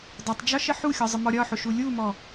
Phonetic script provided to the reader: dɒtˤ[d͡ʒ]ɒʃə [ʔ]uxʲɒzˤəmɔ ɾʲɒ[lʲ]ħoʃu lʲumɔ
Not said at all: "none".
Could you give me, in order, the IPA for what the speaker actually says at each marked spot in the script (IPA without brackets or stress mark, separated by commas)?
d͡ʒ, ħ, none